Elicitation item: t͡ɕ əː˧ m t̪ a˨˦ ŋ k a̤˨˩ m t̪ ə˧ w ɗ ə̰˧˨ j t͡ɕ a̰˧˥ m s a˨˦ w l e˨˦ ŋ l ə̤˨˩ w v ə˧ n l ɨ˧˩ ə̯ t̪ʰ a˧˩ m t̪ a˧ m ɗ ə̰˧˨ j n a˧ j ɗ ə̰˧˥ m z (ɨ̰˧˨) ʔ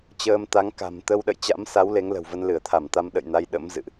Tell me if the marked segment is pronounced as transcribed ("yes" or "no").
yes